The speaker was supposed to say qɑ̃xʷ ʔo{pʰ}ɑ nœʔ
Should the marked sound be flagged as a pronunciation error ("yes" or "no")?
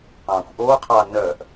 yes